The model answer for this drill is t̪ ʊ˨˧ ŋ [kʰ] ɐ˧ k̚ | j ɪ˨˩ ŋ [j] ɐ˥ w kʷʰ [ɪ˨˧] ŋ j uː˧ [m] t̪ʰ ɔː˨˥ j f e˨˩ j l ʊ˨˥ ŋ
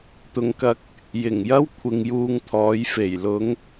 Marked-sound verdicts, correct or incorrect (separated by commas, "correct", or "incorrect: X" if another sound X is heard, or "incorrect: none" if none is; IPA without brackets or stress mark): incorrect: k, correct, incorrect: ɪ˧, incorrect: ŋ